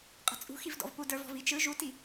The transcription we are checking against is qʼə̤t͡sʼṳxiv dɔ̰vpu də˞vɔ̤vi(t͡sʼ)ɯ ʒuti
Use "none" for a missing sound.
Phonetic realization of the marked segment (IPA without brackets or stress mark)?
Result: t͡ʃ